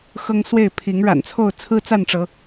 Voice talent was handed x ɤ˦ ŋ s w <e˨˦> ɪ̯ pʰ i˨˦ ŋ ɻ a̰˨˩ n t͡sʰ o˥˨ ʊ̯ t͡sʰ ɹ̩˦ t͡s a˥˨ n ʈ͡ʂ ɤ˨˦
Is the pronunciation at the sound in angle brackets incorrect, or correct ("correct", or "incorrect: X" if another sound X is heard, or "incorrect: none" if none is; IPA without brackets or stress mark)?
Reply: incorrect: e˥˨